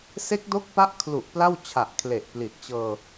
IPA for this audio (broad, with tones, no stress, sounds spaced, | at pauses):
s e˦˥ k̚ d o˦˥ k̚ p a˦˥ ʔ kʰ l u˨˩ ʔ p l a˥˩ w t͡ɕʰ a˨˩ ʔ kʰ l e˨˩ ʔ p l i˨˩ t̚ t͡ɕ ɤː˧